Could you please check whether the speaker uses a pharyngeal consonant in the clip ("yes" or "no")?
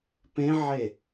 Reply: yes